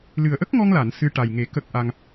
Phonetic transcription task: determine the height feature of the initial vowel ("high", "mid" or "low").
high